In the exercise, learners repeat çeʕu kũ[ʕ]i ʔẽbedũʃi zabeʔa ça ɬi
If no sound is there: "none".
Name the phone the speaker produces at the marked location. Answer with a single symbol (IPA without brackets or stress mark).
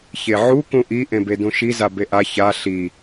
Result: ʔ